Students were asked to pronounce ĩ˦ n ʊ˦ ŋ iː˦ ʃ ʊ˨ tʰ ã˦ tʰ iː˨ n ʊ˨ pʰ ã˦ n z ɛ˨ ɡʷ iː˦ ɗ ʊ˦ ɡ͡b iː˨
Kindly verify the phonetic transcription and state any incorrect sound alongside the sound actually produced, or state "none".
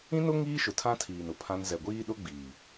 none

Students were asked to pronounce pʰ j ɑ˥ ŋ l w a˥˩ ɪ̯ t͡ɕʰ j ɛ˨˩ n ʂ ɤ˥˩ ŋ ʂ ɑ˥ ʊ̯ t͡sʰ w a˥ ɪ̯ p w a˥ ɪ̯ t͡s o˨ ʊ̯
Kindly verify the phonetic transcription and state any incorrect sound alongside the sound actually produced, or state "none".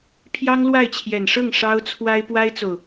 none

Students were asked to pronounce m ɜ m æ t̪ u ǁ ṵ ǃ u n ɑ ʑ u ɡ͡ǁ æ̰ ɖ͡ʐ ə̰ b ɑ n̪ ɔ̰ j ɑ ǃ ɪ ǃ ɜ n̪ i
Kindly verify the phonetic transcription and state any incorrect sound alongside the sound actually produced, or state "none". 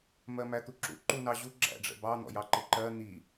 none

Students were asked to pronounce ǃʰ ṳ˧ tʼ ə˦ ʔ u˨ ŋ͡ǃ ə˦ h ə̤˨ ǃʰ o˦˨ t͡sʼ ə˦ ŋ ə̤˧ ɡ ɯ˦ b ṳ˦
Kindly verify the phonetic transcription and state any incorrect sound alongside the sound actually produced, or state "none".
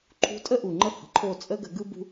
ŋ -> ɡ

